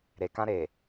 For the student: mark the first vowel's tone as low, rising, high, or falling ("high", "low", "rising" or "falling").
low